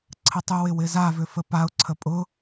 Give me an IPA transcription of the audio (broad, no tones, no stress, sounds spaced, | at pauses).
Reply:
ǀʰ ə tˤ ʏ w ɪ w ɪ z a v ʏ f ə p a ʊ̯ ǀʰ ə pʼ ʊ